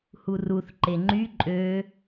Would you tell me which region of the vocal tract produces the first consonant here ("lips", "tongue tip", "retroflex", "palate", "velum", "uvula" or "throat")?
throat